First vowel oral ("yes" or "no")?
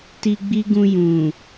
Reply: yes